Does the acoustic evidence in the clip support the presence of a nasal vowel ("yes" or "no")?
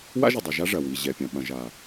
yes